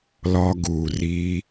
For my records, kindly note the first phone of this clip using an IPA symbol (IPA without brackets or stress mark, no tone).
l